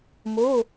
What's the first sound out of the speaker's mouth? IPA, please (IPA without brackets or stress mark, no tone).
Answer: m